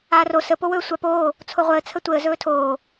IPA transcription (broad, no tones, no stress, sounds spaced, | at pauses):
aː r o s ə p o w ɵː sʷ a p oː | t͡sʰ o ʁʷ əː t͡sʰ ə tʷ əː z ɵː tʰ oː